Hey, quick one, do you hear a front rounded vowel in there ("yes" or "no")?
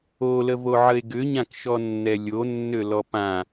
yes